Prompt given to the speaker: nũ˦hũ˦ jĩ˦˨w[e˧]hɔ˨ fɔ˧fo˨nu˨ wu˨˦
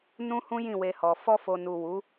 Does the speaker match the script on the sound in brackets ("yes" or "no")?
yes